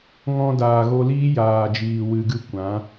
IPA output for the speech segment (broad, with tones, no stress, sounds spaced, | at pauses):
ŋ ɔ̃˧ d aː˨ ɣ o˧ l iː˦ j aː˨ d͡ʒ iː˨ w ɨ˨ ɡ ɨ˧ kʷ ã˨˦